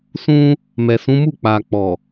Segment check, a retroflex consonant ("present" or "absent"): absent